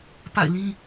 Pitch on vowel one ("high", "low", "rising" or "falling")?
falling